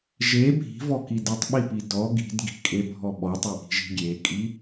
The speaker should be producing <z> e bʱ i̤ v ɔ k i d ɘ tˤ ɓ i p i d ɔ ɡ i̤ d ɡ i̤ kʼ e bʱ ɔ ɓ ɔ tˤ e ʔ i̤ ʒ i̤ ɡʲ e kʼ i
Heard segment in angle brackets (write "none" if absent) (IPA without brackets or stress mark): ʒ